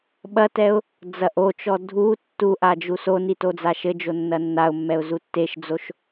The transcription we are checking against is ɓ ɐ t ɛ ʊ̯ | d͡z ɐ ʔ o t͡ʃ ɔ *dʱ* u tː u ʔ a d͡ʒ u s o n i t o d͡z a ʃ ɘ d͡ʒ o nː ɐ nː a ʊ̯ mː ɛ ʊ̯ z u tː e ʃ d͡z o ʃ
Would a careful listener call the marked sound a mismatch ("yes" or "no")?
no